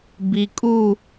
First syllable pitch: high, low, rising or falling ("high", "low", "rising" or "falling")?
low